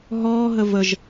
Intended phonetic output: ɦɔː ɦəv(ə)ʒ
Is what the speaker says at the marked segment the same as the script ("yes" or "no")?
yes